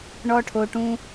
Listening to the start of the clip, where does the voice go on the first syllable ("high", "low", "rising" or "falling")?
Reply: high